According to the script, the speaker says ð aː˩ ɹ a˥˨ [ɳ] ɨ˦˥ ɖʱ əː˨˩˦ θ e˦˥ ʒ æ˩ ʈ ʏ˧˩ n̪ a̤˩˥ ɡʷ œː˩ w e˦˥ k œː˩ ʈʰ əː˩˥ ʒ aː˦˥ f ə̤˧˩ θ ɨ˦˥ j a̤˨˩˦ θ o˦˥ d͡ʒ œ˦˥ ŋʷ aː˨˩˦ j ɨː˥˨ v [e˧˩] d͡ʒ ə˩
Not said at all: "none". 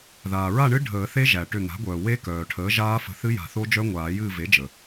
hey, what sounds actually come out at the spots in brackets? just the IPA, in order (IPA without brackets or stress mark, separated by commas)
ɳ, e˩˥